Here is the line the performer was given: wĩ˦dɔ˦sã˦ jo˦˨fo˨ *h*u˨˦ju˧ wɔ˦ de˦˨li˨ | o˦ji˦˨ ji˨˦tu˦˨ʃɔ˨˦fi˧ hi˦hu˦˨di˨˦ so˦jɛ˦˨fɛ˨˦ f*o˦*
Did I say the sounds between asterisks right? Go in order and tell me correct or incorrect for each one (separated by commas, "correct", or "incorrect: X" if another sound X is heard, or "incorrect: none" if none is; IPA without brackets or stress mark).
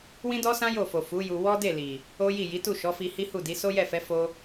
incorrect: f, correct